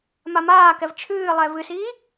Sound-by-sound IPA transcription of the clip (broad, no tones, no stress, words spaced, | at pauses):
mamaːkɛv t͡ʃʰɨːlˠɛ vɨsiː